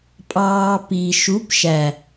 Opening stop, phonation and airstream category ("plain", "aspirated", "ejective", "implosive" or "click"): ejective